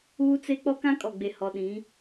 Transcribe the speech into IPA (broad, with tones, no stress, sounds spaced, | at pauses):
uː˦ t͡s e˦ k͡p ɔ˦ k ã˦ kʼ ɔ˨ ɡ͡b e˨ h ɔ˨ ɗ ĩ˨˦